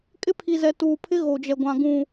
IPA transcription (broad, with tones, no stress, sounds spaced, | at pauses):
kʼ ɪ˦ pʰ i˨ z ɛ˨ t uː˨ pʰ ɪ˦ ɣ o˨ d͡ʒ ɛ˨ ɡʷ ã˨ ɡ ũ˨